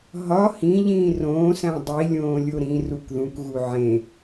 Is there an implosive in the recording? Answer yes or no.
no